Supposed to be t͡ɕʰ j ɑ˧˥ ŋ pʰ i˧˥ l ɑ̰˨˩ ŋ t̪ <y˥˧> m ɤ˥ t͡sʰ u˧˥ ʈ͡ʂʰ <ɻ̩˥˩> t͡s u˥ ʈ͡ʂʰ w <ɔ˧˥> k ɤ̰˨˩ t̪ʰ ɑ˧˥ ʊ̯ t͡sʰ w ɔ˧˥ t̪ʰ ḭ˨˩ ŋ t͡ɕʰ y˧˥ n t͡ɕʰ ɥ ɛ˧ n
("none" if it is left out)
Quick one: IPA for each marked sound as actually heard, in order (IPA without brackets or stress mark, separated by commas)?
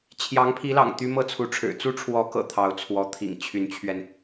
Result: y˥, ɻ̩˨˩, ɔ˧˥